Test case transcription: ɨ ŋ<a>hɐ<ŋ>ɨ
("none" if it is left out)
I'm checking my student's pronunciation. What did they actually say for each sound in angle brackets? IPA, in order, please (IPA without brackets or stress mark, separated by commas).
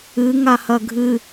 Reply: a, ɡʱ